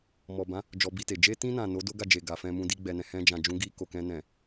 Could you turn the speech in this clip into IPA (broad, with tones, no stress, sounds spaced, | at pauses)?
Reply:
m ɔ˨ b ã˨˦ | d͡ʒ ɔ˧ b i˧ t e˨ d͡ʒ e˧ t ĩ˧ n ã˨ n o˨˦ d o˦ ɡ a˦˨ d͡ʒ e˨ ɡ a˨ f ɛ̃˧ m ũ˧ d i˧ ɡ͡b ɛ˨ n ɛ̃˨ h ɛ̃˧ d͡ʒ ã˨ d͡ʒ ũ˨˦ ɡ i˧ k o˨ k ɛ̃˧ n ɛ̃˨